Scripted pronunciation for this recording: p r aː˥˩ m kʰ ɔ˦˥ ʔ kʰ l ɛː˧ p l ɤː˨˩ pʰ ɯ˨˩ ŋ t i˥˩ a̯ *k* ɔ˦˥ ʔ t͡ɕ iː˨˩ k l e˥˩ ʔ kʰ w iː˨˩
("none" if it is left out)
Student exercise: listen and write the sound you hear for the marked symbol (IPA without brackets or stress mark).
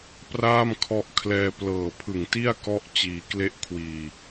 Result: k